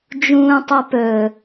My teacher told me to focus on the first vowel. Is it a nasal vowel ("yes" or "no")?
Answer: yes